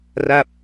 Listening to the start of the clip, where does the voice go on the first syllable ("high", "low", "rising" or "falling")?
falling